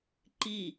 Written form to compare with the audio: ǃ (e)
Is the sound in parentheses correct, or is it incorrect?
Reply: incorrect